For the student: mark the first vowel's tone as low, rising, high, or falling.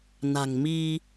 low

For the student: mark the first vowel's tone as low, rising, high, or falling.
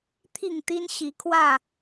falling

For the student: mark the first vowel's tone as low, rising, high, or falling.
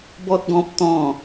high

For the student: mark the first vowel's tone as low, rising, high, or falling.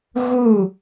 falling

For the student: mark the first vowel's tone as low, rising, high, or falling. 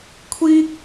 high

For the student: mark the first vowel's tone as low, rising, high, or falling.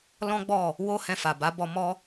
high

